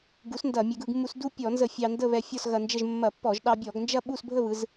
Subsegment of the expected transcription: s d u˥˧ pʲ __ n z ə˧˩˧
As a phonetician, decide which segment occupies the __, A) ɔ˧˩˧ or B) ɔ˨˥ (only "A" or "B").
A